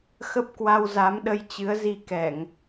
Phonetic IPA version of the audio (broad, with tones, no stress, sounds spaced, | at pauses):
x ə˦˥ p̚ k w a˧ w z a˨˦ m ɗ ə˧ j t͡ɕ ɨ˨˦ ə̯ z i˧ k ɛ˧˩˨ ŋ